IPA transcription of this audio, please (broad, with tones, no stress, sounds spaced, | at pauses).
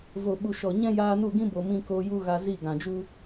v o˨ ɓ u˨ ʃ ɔ˨ ɲ ɛ̃˦ j aː˧ n u˦˨ ɡ ĩ˦ b o˨ m ĩ˧ k oː˧ j u˦ ɣ a˧ z i˦˨ ɡ ã˨ d͡ʒ u˦